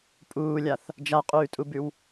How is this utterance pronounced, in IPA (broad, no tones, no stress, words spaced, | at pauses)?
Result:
pʼuːlʲaθ | d͡ʒaqʼʉːtʼubʉw